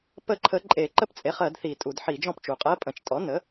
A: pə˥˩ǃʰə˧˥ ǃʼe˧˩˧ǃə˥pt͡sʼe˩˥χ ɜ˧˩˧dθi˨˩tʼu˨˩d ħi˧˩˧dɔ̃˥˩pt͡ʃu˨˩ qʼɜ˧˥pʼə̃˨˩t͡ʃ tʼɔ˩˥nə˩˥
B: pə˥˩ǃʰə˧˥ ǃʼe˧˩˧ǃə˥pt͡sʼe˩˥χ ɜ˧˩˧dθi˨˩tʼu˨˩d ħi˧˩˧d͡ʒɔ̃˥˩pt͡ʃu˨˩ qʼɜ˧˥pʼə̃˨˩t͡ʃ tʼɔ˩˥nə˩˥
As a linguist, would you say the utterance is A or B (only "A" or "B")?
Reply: B